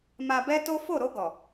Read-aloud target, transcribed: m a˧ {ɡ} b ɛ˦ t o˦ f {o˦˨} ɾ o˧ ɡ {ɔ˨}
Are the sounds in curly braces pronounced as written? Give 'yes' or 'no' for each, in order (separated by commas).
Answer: no, yes, yes